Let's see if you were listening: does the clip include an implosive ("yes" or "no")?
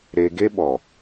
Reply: yes